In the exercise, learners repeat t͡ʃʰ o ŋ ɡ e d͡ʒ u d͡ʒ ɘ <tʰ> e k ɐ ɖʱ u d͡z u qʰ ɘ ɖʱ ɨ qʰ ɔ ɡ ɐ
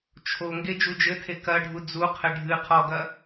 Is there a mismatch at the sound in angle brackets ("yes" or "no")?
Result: no